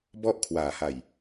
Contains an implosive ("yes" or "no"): no